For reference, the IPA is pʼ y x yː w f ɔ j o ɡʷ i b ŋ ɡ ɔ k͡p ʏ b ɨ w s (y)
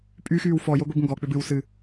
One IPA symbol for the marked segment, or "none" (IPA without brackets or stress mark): ɨ